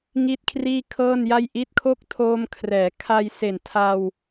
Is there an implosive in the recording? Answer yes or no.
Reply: no